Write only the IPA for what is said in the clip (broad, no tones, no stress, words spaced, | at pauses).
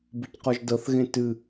bɨcqɔʒdɤθɣẽ tɨ